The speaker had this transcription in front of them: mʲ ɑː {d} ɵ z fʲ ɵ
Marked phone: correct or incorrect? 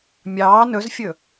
incorrect